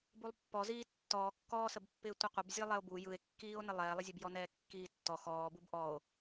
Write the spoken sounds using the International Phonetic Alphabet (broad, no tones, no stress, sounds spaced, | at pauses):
b u lˠ pː ɔ z iː tː ɔː kː ɔː s ə b pː ɪː tʷ ɯ qʷ ə b zʲ ɛ lˠ ɛ o̯ b u j ɯ e̯ kː iː o̯ n ɘ lˠ ɛː lˠ ə zʲ ɛ b j ɔ n ɛː kː iː tː ɔ x ɔː b u b ʔ ɔ o̯